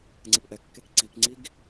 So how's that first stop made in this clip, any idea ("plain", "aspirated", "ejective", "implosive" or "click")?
click